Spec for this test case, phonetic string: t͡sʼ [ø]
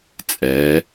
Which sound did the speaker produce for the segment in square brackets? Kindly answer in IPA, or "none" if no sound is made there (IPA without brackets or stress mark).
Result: ɛ